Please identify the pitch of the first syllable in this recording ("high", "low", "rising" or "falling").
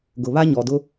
low